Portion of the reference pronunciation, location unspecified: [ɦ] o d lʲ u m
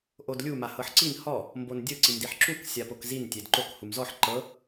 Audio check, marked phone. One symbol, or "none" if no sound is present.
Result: ʔ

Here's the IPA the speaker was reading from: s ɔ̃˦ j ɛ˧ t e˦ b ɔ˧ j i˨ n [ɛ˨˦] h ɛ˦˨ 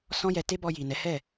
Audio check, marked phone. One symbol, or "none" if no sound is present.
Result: ɛ˨˦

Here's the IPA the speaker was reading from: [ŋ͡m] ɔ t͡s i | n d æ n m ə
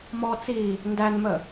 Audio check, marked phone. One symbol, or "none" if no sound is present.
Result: m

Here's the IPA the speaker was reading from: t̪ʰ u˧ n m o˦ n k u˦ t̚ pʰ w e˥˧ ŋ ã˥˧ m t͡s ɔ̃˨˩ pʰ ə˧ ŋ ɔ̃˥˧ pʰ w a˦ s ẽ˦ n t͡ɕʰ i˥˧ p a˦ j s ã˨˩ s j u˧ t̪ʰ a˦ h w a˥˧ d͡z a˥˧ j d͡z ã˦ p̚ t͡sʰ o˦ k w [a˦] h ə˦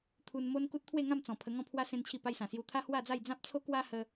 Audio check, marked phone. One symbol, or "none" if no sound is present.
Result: a˦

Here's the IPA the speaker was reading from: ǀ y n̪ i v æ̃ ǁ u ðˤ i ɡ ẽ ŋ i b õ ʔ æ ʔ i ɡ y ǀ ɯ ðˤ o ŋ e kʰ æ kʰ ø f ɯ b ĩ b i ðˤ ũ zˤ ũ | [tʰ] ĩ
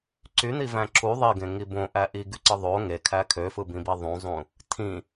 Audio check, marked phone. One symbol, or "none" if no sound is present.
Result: tʰ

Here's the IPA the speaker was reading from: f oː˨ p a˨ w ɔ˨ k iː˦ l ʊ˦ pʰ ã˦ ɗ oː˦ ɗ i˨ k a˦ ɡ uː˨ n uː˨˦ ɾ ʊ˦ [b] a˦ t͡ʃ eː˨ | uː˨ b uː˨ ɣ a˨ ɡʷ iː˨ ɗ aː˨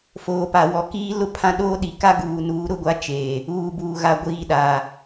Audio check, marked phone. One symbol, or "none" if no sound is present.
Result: ɡʷ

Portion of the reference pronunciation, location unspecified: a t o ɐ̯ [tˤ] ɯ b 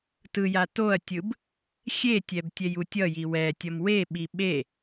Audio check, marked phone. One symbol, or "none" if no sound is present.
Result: tʲ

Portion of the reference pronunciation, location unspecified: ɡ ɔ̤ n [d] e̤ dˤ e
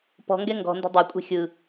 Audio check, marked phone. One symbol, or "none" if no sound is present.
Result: d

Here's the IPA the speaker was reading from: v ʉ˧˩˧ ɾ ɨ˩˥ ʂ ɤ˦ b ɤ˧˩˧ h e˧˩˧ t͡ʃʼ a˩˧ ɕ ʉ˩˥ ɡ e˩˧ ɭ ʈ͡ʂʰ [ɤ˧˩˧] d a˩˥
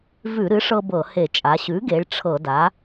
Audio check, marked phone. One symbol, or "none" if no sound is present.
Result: ɤ˧˩˧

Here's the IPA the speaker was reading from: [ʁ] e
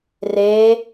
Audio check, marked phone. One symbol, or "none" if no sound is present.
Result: r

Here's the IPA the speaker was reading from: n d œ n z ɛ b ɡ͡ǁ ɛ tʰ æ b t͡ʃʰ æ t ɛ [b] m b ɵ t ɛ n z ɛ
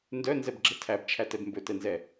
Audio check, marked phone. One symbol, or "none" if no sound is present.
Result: b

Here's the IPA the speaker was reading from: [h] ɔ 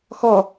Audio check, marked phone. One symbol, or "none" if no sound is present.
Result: x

